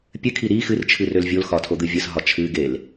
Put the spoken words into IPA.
pʲɨkʰi ɾi xɨrt͡ʃʰɨ rølvʲolxɒtʰo d̪ɨvʲəs ɦɒt͡ʃʰɨɡel

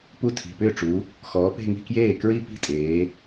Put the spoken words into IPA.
pu˦˥tʰi̤˩˧˩pʏː˥˩ ʈ͡ʂu˨˦ | xɔː˨˦pe̤˥˧ŋi̤˥˧kjeː˥˩ kɹi˥˧pi̤˥˩tʼeː˨˦

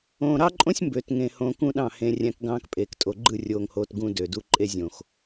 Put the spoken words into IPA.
õː˨ɾɑ˦ǃʼõ˦sʲ mbø˨tŋẽ˨hõ˨ kũ˦ɗɑ̃˦˨ hẽ˨ rʲæ̃˦kɡɑ̃ː˦k pʼeː˨ktʼo˨ ɡ͡ǃɯ˦˨rʲoː˨ŋhoː˨t ɡũ˦dø˨du˦ ǃʼe˦zʲõ˨x

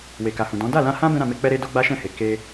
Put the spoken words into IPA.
we˨ka˨hũ˨ dɔ̃˨˦ da˦˨lã˧hã˦ bɛ̃˦ɾã˧me˧k͡pɛ˦ ɾe˦ do˦ɡ͡ba˦ʃɛ̃˦˨he˨ ke˧

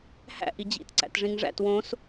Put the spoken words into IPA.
hæ̰ʔ id͡ʑḭt ǀæ̰tʐĩŋʐæ̰t wõs

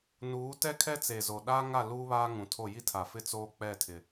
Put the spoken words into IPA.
nuː˨˦tɛ˦ kʰɛ˦t͡se˨zo˨ ɗaː˦ŋa˦˨ luː˦βaː˦ŋũ˨tʰo˦˨ ji˦tʰa˨fɪ˦ t͡soː˦k͡pɛ˦˨tʰɪ˨

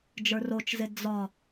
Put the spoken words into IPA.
d͡ʒə˞rot͡ʃze d͡zɒ

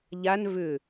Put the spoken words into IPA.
ʎan vʏ

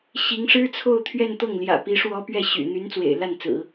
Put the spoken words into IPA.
ɕi˧˥ŋ ʂɻ̩˥t͡sʰo˥˧ʊ̯ t̪ʰɥɛ˥˧nt̪ɤ˥˩ŋljä̰˨˩pi˧˥ ʂwɔ˥ pɥɛ˥˩ɕy̰˨˩ n̪y˧˥n t͡swḛ˨˩ɪ̯la˥˩nt͡sɹ̩˨˩˦

